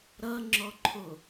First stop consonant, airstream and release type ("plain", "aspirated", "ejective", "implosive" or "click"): click